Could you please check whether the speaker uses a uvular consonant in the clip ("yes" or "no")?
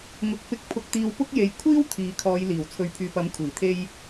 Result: no